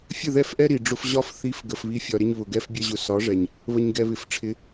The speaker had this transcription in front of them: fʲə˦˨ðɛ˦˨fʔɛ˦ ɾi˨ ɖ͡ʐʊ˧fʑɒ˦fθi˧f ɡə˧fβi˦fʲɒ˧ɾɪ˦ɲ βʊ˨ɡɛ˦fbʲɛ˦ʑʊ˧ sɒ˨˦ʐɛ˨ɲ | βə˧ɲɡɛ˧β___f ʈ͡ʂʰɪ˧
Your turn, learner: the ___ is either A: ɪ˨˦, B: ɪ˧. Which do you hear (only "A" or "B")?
A